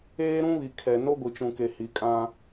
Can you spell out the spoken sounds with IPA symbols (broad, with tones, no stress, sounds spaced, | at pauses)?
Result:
eː˦ ɾ ũ˦ β i˨ kʰ ɛ˨ n o˦ ɡʷ i˨ t͡ʃ ũ˨ k e˨ h i˨ kʼ ã˦